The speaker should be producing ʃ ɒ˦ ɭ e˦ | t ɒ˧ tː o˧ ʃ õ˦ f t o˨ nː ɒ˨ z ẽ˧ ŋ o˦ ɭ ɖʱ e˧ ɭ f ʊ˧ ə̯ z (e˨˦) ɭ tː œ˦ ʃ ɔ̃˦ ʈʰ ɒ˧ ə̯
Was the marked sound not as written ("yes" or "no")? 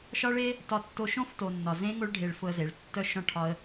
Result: no